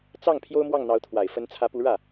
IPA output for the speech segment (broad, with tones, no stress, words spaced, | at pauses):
t͡sɑ˥˩ŋ pʰjo˥ʊ̯mwɑ˥˩ŋ n̪ɑ˧˥ʊ̯t̪ʰwa˨˩ɪ̯ fə˧˥nt͡sʰä˧˥pu˧˥ɻä˥˩